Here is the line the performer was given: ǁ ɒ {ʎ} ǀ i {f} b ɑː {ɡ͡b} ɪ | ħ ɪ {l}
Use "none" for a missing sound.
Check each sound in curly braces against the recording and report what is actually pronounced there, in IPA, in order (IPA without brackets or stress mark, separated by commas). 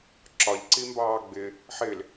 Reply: ʎ, m, ɡ͡b, l